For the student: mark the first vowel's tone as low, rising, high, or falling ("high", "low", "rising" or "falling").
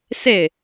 falling